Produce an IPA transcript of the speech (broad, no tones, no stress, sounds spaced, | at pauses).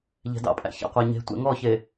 ʎ ɛ̤ d ɑ̰ pʼ æ̰ ç æ̰ qʷ æ ɲ e̤ tʷ ɛ̰ ŋ ɔ ç e